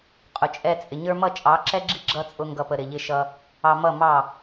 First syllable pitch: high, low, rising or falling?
low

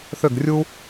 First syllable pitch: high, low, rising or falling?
falling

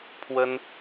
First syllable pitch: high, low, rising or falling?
high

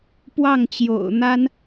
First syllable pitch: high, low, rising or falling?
falling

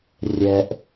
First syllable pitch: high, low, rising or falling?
low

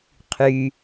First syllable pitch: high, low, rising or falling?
low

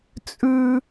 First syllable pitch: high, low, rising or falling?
high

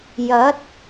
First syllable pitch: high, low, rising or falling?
rising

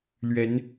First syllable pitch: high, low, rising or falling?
rising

